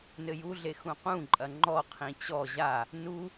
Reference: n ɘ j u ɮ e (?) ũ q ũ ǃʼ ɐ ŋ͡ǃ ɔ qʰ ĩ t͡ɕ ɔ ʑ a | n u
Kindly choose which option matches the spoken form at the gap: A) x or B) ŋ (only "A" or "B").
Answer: A